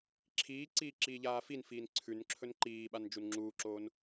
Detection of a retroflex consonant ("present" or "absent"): absent